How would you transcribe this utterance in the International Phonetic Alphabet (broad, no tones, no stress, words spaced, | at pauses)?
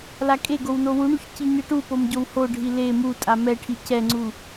lakʼeɡow nowuɳuç ciɲɯʈupom ɟowhoɖʱi le mutʼa mɛʈʰi cɛŋ͡ǀu